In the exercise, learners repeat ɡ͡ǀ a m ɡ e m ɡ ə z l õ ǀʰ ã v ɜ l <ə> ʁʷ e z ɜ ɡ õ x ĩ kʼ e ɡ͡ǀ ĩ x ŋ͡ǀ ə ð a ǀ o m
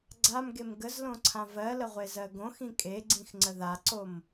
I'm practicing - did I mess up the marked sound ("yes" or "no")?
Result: no